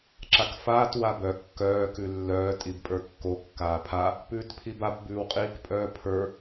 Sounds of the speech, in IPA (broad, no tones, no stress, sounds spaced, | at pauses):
ǁ a k f aː t w a b œ kː œː k ʉ lː œː tʼ i b pʼ ə˞ kː o kː aː pʰ a | p ʉː t pʰ i b a p b ʉː w qʼ iː k pʼ œː pʰ ə˞